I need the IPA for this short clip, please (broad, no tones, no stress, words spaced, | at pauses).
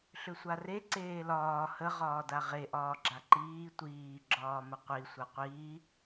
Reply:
ɬʏsʷare ǀeːlɒː hə ʁɒːdaʁe ʔɒːɡ͡ǁaǃiː tʷiː ɡ͡ǁɒːməqʷi sʷaqʷiː